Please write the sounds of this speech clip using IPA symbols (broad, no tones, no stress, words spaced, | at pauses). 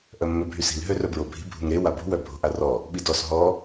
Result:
ʔœmːøbʱysi̤l ɦørœbɹobʱi̤ bʱṳŋɾe wabṳ wœbʱo̤ʔarɔ | ɓidɔs ɦɔ